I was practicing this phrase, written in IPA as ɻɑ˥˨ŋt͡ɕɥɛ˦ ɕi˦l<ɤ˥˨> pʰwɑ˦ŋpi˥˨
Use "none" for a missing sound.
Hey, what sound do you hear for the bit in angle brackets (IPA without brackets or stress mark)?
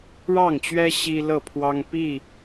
ɤ˥˨